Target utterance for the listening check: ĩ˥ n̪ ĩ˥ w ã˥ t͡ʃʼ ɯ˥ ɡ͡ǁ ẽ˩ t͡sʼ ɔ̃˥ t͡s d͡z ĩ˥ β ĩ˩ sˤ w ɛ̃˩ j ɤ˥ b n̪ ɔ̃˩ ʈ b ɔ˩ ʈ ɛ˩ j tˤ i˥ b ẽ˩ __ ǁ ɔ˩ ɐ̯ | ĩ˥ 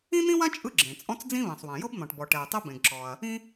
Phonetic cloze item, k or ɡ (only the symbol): ɡ